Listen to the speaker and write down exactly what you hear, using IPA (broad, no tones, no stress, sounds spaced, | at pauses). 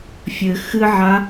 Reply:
fʲ ɘ x ɨ ʕ a